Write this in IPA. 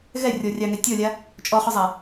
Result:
ɣ ɛ rʲ ɔ rʲ ɑ ŋ ɛ tʲ ɔ lʲ a | t͡ʃʼ ɔ χ ʊ zˤ a

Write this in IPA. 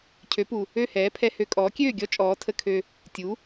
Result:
cʰ ø˩˥ p u˩ | ø˥˩ h ɛː˩˥ pʰ ɛ˧ h ø˧ kʼ ɔː˩˥ kʲ øː˥˩ ɡʲ ɔ˥ t͡ʃʼ ɔː˩˥ tʰ ə˧ kʰ ø˧ | tʲ u˩˥

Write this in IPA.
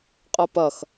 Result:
qʼ ə p ɐ x

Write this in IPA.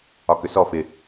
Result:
ɒ k ʏ s ɔ f ɪ

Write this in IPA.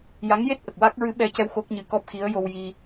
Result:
j a˧˥ ŋ j e˦˥ t̚ ʔ ə˨˩ k̚ w a˦˥ k̚ ɹ ɨ˧˥ ɓ ɛ˧ c ɛ˧ w x o˦˥ k̚ ɲ ɨ˧ k ɔ˦˥ p̚ x i˧˥ ə̯ j o˧ w j i˧

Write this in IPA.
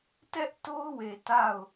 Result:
t ɛ˦ ʔ t o˦ ʊ̯ w e˨ t a˦˨ ʊ̯

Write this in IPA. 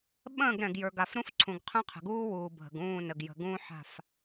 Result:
ɓ ə̃ː˦˨ ɡ ɾ ɛ̃˨ ɡ j ə˞˨ ɡ a˨ f ɾ ũ˦ f ǀʰ ũ˨ ɡ qʰ ə̃ː˦ qʰ ə̤˨ ɡ uː˦ w uː˨ bʱ ə̤˨ ɡ ũː˦˨ n ə˨ ɡ j ə̤˨ ɡ ũː˦ ħ a̤˦˨ f

